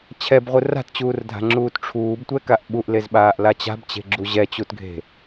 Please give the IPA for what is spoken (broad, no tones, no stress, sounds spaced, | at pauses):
t͡ɕʰ ɛ b ʁʷ ɯ r a̤ t t͡ɕ uː r dʱ a̤ ŋ͡ǁ uː t ʈ͡ʂʰ uː b tʷ ɛ k a ʔ ɓ u ʔ l e z ɓ aː ʔ l a t͡ɕ a̤ b t͡ɕ e̤ ɡ͡ǁ u ʑ ɛ t͡ɕ u t ɡʱ e̤